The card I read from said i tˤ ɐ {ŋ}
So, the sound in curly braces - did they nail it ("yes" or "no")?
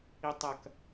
no